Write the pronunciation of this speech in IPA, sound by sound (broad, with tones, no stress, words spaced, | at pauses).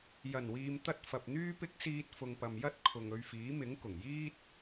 jɐ˨˩nwiː˨m t̪ɐ˧t̚ fɐ˨p̚n̪yː˥pɪ˥k̚ siː˧t̚ fʊ˨ŋpɐ˨mjɐ˥t̚ kʰʊ˨ŋɵ˧ɥfiː˨˥mɪ˨˥ŋ kʊ˨˩ŋjiː˥t̚